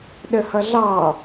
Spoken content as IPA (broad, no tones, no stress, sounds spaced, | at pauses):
ɗ ə h ʌ ɮ ɑ